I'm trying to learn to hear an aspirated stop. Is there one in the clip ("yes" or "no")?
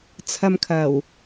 yes